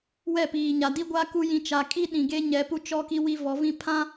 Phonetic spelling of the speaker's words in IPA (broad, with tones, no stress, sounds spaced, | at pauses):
w ɛ˦˨ p iː˨ ɲ a˨ d i˦ ɡʷ a˦ k u˦ j ĩ˨ t͡ʃ a˨ kʼ i˦ ɗ ĩ˨ ɡ e˦ ɲ ɛ˨˦ p u˦ t͡ʃ ɔ˦ k i˦ w i˦ v ɔ˨˦ v ĩ˦ pʰ ã˦